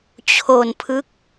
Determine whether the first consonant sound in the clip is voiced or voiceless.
voiceless